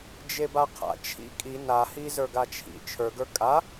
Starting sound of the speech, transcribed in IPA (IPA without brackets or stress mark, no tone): d͡ʒ